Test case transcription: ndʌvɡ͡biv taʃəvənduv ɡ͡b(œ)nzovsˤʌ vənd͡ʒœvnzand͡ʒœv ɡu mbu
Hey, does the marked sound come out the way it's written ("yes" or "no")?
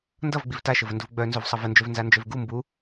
yes